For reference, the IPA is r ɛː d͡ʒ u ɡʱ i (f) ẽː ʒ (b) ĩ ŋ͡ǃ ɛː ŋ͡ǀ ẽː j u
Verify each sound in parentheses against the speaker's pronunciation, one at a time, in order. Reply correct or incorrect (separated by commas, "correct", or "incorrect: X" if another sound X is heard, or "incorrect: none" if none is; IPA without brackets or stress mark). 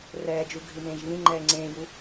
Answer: incorrect: m, incorrect: β